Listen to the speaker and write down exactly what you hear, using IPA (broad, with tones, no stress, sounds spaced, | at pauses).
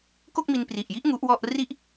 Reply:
k o˥˩ k̚ m i˧ n p r i˨˩ ʔ j i˦˥ ʔ ŋ u˦˥ ʔ w ɔ˥˩ ʔ r i˥˩ ʔ